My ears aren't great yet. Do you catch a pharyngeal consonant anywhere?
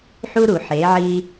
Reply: yes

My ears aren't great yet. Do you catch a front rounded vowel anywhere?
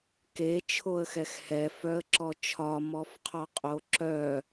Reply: yes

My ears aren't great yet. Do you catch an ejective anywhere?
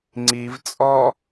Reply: yes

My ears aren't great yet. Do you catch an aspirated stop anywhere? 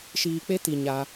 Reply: no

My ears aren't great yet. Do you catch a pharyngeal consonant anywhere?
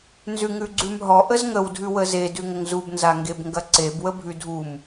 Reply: no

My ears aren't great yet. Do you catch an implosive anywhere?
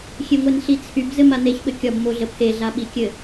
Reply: yes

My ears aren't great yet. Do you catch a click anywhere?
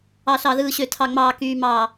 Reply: no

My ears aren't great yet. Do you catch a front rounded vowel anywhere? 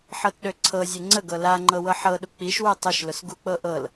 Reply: yes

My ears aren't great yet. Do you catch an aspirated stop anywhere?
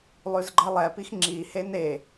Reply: no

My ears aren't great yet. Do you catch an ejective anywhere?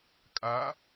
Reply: yes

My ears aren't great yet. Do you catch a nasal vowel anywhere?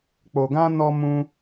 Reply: yes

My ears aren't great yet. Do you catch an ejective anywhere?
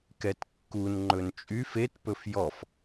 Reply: yes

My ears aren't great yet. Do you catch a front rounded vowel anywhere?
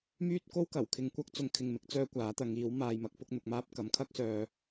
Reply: yes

